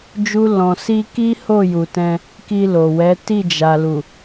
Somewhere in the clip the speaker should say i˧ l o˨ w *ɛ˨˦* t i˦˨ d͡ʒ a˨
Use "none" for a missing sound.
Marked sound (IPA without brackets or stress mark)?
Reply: ɛ˨˦